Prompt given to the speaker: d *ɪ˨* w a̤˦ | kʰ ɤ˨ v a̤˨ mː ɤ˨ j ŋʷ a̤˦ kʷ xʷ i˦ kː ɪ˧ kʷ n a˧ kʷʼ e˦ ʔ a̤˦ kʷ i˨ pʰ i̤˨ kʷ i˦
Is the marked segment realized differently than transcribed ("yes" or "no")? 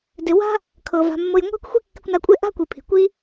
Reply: no